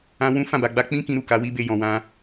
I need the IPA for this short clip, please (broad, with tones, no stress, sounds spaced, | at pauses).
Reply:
ã˦ w ũ˦ f ã˦˨ b a˨ ɡ͡b a˧ k͡p ĩ˦ k ĩ˦ ɾ u˦˨ k a˨˦ w i˦ b e˧ j ɔ̃˨ w ã˧